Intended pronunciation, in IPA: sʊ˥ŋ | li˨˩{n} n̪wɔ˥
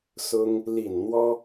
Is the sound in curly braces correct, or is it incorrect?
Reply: correct